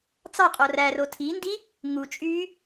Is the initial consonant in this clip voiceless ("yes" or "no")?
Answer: yes